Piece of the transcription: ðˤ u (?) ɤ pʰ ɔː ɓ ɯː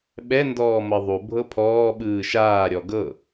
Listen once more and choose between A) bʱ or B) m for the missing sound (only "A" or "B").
A